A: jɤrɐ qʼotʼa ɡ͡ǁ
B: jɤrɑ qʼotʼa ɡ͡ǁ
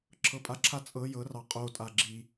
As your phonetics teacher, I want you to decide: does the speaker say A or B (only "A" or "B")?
B